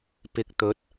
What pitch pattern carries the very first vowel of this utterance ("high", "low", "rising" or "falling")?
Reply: rising